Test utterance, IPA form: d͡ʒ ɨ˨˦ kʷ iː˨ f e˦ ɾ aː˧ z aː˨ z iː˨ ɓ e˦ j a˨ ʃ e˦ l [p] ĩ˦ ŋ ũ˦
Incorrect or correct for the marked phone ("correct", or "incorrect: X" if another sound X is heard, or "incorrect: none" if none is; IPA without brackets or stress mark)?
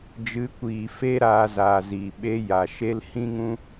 incorrect: h